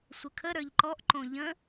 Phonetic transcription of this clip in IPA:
sʷ ə kʰ ə ɾ ə˞ ʎ ǃ ɔ ʔ ǃ õ ʎ ə̃

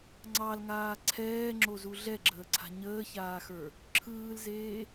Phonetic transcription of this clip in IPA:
ŋ͡ǀ ɑ l ŋ aː ǀʰ ɛː ŋ͡ǁ o z u ɮ ɛ ɡ͡ǁ əː ǀʰ a̤ ɲ əː ç aː x ə˞ | ǁʰ ɯː l z eː

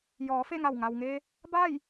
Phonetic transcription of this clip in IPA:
j ɔː˩˧ f e˥˨ ŋ a˧˩ w ŋ a˩ w ŋ e˧ | b a˥˨ j

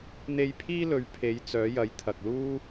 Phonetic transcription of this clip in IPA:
n̪ e˧ j pʰ iː˥ l ɵ˨˧ ɥ pʰ e˨˧ j t͡s œː˨˧ j ɐ˨˧ j t̪ʰ ɐ˨ k̚ l uː˥

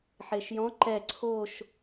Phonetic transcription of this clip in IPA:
ħ e ʃ j ɔ̃ ǃ ɛ ǀʰ o ʃ

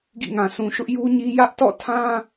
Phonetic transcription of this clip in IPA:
ɡ ḭ˦˨ ŋ ã˨ sʰ ũ˨ ʃ ʊ˦ ʔ j u˦ ɲ i˦ j ä˦ ʔ t ɔ̰˦˨ tʰ ã˦

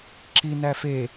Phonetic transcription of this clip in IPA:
ǁ i n æ f e

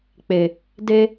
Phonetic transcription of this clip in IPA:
k͡p e˨ | d e˦

